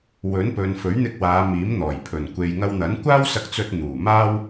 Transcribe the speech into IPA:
w ɵ˨˥ n p ɵ˨ n f ɵ˨˥ ɥ n̪ ɪ˧ k̚ w aː˨˧ m iː˨˥ m n̪ ɔː˨˩ j pʰ ɵ˨˩ n kʷ e˨ j ŋ ɐ˧ w n̪ ɐ˨˥ n kʷ aː˥ w s ɐ˧ k̚ t͡s ɵ˧ t̚ n̪ uː˨˩ m aː˥ w

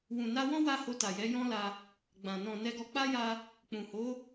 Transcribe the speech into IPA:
w ũ˨ n a˧ w ɔ̃˦ w a˧ h o˧ t a˨ j ɛ˨˦ j ɔ̃˦ l a˧ | ɡ͡b ã˨ n ɔ̃˨ n ɛ˧ ɡ ɔ˧ k͡p a˦ j a˧ | k͡p ũ˨ h o˨˦

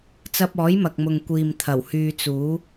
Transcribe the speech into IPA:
t͡s ɐ˧ p̚ ɔː˨˥ j m ɐ˨ k̚ m ʊ˨ ŋ kʷ iː˨ m t̪ʰ ɐ˨˩ w h yː˧ t͡s uː˨˥

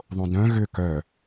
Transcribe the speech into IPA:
ðˤ õ d œ̃ ɣ ʏ k œ

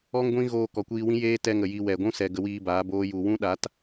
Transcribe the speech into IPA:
ɔ˦ ŋ ɡʷ ĩ˦ ɣ oː˧ k ɔ˨ kʷ iː˧ w ĩ˦ j eː˦ t ɛ˧ ŋ ə˨ j i˧ w ɛ˨ ɡʷ ũ˦ s ɛ˨ ɡ ə˧ w iː˧ b aː˨˦ b oː˦ j u˧ w ũ˦ ɗ a˨˦ t

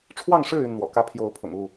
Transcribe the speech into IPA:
ʈ͡ʂʰ w ɑ˥˨ ŋ ʂ ɻ̩˥˨ y˥˨ n n̪ w ɔ̰˨˩ k ä˦ pʰ j o˨˦ ʊ̯ pʰ ʊ̰˨˩ ŋ u˥˨

